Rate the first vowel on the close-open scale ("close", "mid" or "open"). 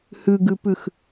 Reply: close